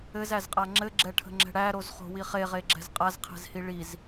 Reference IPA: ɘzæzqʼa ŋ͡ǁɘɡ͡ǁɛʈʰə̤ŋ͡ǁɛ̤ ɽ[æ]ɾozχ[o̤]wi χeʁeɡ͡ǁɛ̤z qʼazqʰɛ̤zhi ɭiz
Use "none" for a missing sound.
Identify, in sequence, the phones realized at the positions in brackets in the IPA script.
æ, o̤

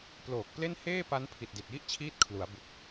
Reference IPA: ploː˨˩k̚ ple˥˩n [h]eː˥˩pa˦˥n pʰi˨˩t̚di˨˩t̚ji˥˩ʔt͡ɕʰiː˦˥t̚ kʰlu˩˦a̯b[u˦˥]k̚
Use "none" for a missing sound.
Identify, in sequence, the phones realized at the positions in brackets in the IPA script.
h, u˨˩

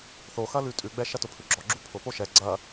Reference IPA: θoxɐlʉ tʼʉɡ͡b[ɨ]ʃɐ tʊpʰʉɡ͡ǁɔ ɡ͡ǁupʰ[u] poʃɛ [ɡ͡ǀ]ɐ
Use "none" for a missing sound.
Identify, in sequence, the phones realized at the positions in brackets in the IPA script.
ɛ, ʊ, ɡ͡ǀ

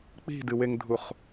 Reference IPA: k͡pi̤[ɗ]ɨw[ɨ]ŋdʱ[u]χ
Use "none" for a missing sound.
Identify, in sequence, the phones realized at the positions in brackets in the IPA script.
d, e, u

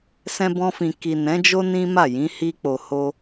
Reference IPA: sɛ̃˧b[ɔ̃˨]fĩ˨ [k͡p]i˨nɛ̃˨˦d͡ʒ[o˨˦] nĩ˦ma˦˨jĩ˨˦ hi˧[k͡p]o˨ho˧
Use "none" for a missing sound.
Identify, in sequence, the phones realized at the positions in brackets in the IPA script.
ɔ̃˧, k, o˦, k͡p

